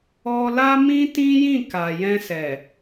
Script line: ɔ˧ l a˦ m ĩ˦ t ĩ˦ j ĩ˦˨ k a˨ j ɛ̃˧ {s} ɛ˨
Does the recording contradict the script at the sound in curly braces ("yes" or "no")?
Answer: no